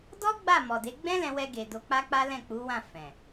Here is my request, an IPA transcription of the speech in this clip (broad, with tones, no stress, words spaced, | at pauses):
dɔ˦ ɡ͡ba˦˨mɔ˨de˨˦ ɡ͡bɛ̃˦lɛ̃˧wɛ˧ɡe˨ do˨˦k͡pa˦k͡pa˦ lɛ̃˦˨ k͡pu˨˦wã˦˨ fɛ̃˨